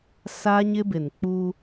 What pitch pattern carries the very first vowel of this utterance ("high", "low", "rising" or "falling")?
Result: high